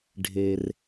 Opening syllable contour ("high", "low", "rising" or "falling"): low